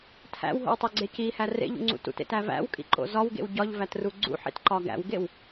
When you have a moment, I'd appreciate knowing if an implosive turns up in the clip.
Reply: no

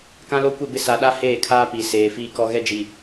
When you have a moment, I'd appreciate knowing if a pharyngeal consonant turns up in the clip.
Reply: no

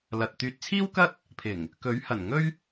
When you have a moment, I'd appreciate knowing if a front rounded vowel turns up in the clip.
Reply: yes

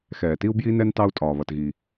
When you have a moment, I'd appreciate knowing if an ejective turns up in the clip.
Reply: yes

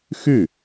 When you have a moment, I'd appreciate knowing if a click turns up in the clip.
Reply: no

